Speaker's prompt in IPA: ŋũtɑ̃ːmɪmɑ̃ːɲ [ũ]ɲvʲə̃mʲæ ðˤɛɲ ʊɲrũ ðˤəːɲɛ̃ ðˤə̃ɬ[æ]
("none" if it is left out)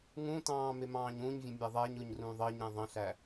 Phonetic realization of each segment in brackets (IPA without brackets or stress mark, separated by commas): ũ, æ